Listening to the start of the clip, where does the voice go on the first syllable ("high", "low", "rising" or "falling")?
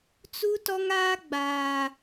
high